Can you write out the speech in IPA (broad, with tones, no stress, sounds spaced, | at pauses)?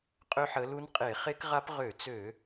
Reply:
qʼ ø˦˥ ħ ə˨˦ l u˦˥ n qʼ e˧˩˧ χ e˦˥ k ʁ a˦˥ p ʁ ø˧˩˧ t͡s ø˧˩˧